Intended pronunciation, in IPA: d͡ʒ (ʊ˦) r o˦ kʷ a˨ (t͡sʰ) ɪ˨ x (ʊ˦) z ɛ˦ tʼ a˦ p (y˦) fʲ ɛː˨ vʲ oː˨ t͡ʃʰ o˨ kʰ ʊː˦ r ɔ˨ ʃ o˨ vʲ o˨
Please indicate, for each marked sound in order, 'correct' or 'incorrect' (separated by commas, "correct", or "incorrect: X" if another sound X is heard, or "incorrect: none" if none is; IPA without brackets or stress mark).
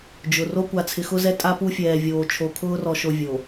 incorrect: ʊ˨, correct, correct, incorrect: u˦